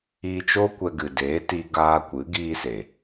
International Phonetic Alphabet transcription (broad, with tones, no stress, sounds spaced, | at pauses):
iː˧ t͡ʃ o˦ kʷ ɛ˧ ɡ ɨ˨ d eː˨˦ t i˧ ɡ aː˧ kʷ ɨ˨˦ ɡ iː˧ s e˨